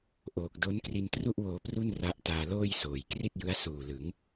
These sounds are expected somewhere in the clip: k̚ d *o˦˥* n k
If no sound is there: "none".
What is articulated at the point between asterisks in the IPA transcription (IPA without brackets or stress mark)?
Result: o˦˥